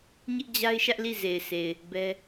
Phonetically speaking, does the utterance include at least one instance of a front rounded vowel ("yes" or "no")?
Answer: no